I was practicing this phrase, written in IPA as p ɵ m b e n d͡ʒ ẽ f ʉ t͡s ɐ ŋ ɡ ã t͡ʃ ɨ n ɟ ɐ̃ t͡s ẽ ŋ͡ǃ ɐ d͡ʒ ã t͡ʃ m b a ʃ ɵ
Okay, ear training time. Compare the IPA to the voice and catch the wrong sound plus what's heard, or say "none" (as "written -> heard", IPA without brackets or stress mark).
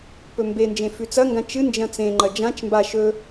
ɟ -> d͡ʒ